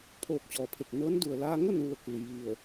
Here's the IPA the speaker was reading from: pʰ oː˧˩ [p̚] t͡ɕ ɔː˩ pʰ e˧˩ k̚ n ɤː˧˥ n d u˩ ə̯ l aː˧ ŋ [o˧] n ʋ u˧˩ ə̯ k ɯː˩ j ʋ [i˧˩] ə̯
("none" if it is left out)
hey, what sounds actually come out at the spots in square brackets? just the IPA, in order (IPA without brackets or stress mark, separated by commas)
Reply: k̚, o˥˨, i˧˩